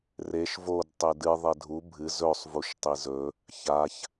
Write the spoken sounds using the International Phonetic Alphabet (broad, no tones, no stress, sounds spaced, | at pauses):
r e ʃ v o d tˤ e d ɨ ðˤ e dʱ u bʱ ɨ z ɵ sˤ v u ʃ tˤ i z ɵ | ç a ç